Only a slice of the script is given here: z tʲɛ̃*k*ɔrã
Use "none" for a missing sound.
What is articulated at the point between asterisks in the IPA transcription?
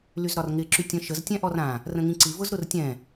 ʔ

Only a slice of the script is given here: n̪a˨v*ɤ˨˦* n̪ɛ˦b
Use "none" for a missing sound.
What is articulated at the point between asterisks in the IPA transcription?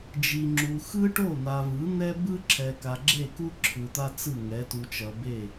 ɯ˨˦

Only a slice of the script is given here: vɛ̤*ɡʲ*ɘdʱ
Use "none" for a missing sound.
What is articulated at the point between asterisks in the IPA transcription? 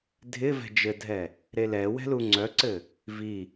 d͡ʒ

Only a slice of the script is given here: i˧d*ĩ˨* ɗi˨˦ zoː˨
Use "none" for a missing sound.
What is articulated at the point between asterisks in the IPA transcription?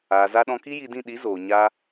ĩ˦˨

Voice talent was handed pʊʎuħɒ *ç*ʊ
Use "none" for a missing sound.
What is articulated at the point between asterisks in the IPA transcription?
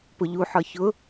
ç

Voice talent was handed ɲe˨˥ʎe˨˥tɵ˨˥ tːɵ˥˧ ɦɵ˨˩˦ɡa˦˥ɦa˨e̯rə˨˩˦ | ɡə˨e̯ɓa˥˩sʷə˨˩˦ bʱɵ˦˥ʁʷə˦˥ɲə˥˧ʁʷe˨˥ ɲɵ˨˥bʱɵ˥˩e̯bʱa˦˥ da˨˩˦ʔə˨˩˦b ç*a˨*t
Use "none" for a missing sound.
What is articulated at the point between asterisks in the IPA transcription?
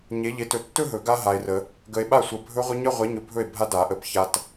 a˨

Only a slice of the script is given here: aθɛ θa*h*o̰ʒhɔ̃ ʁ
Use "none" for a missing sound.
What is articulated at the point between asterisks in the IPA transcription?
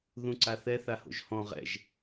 h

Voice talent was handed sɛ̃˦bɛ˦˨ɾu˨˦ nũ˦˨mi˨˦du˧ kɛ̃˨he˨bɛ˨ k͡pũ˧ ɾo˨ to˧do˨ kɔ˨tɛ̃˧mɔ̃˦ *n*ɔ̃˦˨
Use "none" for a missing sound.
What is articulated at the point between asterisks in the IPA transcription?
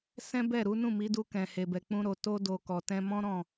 ɾ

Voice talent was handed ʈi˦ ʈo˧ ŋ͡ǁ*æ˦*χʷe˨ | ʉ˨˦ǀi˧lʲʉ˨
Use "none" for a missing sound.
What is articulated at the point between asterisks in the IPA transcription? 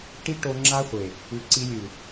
a˦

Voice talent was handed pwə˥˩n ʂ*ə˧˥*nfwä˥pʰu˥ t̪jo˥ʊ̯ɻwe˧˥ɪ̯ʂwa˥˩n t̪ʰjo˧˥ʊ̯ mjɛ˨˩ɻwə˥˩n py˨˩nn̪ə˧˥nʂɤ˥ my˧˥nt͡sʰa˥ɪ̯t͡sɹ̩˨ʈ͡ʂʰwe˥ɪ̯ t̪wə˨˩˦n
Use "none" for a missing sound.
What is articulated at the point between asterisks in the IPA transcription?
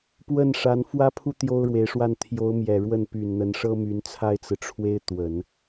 a˧˥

